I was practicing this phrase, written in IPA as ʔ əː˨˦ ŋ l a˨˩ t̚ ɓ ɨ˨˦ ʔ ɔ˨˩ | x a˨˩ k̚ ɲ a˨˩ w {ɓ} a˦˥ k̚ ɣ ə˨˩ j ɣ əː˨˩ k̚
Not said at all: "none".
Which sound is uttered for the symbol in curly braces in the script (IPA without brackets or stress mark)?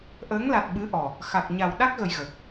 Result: ɗ